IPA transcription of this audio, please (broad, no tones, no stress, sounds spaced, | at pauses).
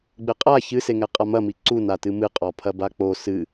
ɡ͡b ɘ qʼ a ç ɨ s e ŋ ɛ qʼ a m ɐ m i ǀ u n a t ɨ m ɨ qʼ ɔ pʰ ɐ b a k͡p o s ɨ